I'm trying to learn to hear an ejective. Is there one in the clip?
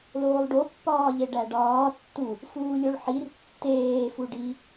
no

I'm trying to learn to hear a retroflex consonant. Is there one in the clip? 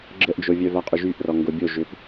no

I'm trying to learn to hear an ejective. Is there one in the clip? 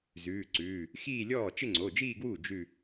no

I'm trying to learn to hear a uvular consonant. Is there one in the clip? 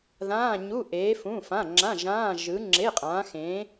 yes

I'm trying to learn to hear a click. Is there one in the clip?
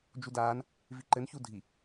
yes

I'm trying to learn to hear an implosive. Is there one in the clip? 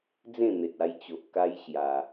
no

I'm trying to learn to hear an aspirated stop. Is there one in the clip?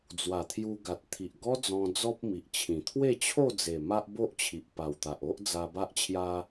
yes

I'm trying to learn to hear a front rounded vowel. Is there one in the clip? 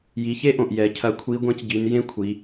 no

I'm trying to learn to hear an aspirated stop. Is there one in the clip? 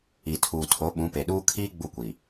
yes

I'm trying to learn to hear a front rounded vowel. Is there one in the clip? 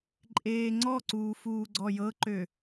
yes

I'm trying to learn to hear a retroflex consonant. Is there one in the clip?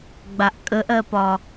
no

